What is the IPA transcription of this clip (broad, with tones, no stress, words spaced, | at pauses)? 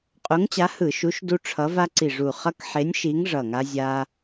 qʼu˨˥ŋt͡ɕa˨˥hɯ˧˩˧ʃu˨˥ʃ du˦ ʈ͡ʂʰʌ˨˥va˦ǀi˧˩ʐu˧˩ χʌ˦kħe˨˥nʲʃi˨˥ŋ ʐʌ˧˩ŋa˦ zʲa˦